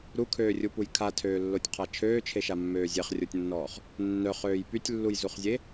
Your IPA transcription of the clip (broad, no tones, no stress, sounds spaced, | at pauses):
ɾ u kʰ øː rʲ u p u j kʰ a tʰ øː lː o tʲ qʰ a t͡ʃʰ øː t͡ʃʰ e ʃ a mː øː zʲ e χ rʲ o tʲ nː ɔː χ | nː œ χ øː j p y tʲ lː u j z u χ zʲ e